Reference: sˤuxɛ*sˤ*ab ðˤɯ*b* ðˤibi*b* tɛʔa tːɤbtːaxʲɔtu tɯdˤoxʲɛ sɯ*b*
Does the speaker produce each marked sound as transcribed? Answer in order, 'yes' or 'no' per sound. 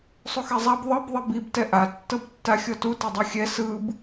no, yes, yes, yes

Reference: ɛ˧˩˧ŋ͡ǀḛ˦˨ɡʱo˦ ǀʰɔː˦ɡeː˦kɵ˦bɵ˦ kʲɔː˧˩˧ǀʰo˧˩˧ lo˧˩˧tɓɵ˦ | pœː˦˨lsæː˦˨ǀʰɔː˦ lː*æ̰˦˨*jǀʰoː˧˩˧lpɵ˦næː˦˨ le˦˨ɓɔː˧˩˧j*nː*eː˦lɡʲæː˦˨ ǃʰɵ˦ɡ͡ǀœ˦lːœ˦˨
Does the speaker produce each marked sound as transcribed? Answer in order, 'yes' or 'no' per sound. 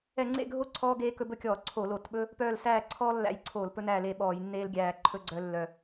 yes, yes

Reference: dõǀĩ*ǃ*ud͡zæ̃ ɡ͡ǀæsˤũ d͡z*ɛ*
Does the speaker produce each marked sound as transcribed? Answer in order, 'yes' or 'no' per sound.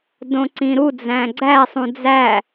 no, no

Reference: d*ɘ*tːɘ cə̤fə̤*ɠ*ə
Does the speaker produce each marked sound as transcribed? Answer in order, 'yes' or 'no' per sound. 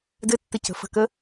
yes, no

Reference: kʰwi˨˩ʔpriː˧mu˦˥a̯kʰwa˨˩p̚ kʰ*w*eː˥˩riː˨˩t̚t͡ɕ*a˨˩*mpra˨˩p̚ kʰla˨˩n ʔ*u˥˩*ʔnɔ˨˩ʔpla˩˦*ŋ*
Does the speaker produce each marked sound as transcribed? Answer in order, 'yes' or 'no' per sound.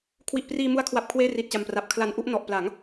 yes, yes, yes, yes

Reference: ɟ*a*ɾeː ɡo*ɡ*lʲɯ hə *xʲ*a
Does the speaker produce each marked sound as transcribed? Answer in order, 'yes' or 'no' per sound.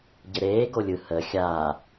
no, no, yes

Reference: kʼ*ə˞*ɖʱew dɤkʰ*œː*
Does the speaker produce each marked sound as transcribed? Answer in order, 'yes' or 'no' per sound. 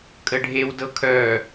no, yes

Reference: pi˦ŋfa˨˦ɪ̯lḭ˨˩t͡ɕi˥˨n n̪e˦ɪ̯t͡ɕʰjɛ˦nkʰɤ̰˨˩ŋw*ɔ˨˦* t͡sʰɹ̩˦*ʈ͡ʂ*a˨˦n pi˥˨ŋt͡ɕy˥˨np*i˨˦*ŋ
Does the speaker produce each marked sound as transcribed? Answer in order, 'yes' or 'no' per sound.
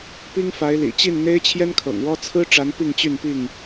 no, yes, no

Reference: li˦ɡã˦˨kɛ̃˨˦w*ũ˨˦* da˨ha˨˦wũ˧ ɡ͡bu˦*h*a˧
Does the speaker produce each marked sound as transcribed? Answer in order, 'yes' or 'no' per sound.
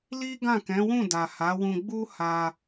no, yes

